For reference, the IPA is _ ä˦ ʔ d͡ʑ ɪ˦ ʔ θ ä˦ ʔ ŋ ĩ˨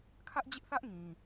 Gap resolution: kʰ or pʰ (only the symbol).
kʰ